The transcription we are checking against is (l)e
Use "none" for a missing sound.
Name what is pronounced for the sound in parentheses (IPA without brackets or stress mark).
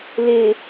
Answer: l